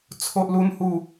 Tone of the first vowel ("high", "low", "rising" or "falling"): high